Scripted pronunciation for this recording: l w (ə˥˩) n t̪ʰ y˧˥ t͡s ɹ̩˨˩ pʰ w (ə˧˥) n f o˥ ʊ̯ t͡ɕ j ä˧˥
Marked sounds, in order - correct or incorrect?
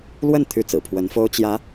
correct, correct

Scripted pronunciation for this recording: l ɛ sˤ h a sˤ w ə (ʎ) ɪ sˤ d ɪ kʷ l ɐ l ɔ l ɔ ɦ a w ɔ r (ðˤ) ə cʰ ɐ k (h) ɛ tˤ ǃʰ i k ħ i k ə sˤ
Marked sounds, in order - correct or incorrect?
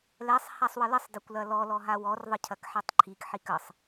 incorrect: l, correct, incorrect: ħ

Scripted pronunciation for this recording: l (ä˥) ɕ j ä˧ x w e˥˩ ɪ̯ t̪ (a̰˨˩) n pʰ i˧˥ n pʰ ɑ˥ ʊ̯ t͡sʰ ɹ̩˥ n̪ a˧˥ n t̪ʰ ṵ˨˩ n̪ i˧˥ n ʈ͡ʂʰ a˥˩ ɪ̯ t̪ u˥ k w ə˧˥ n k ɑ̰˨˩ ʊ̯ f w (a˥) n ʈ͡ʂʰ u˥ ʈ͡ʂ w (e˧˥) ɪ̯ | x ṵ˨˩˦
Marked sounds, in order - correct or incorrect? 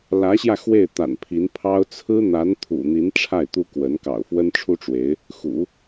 incorrect: ä˧˥, correct, incorrect: ə˥, correct

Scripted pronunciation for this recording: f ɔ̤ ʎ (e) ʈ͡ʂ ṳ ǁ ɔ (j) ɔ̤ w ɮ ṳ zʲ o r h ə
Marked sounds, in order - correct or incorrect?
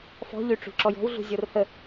incorrect: y, correct

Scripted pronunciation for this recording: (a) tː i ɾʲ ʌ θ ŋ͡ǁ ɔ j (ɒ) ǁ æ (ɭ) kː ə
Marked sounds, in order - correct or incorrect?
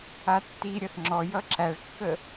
correct, incorrect: ʌ, correct

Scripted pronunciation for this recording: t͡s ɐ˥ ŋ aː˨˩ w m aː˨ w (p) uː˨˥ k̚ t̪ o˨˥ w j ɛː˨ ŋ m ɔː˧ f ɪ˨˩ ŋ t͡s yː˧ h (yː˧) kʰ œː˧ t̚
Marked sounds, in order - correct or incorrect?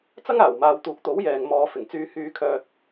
incorrect: t̪, correct

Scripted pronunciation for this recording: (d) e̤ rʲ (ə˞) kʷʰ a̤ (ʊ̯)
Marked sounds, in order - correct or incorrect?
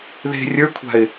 incorrect: ð, correct, incorrect: ɪ̯

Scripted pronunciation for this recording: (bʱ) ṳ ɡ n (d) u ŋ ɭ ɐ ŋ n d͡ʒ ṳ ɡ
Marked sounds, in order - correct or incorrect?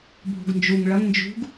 correct, incorrect: d͡ʒ

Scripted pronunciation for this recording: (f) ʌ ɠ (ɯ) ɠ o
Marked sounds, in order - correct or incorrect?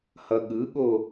incorrect: h, correct

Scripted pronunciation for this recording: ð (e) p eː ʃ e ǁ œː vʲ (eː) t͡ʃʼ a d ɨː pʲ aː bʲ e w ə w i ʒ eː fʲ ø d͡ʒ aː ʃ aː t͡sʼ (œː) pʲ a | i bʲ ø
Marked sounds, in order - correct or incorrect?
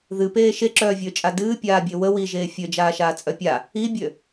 incorrect: ɨ, incorrect: øː, incorrect: œ

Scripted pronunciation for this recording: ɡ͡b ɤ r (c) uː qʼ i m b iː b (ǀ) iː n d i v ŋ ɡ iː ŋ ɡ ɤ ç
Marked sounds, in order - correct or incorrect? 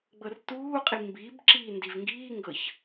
incorrect: t, incorrect: ǁ

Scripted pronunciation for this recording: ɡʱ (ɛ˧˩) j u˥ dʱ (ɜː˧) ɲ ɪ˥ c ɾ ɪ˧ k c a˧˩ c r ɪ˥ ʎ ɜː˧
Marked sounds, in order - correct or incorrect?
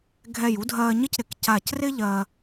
correct, correct

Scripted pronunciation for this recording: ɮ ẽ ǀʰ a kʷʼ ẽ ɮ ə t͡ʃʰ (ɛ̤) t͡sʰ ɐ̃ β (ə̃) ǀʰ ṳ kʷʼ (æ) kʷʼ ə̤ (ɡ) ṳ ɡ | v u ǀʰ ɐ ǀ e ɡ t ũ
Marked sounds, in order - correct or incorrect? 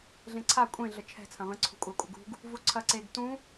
correct, correct, incorrect: a, correct

